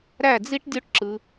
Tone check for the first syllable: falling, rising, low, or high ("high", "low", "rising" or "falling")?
falling